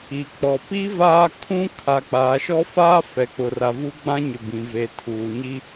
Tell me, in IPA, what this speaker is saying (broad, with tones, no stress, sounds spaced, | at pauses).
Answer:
i˨ k͡p ɔ˨ p i˦ v aː˦ kʰ ũ˦ kʰ a˨ k͡p aː˨ ʃ ɔ˦ f aː˦ f ɛ˨ k͡p ʊ˨ r a˨ v u˦ ɡ͡b ã˦ ɲ ɪ˨ b ĩ˨ v e˨ tʰ uː˨ ɲ i˦